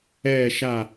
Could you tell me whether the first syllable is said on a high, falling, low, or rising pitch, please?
falling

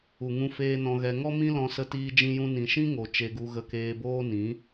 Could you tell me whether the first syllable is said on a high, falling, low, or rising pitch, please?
low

